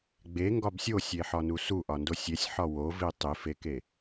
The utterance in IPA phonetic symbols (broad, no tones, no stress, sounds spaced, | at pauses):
ɡ͡b e ŋ ɡ ɒ b sʲ o sʲ e ħ ɒ n u s u ʔ ɒ n d o sʲ e sʲ ħ ɒ w o v i tˤ i f e k e